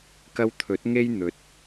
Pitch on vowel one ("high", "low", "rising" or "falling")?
high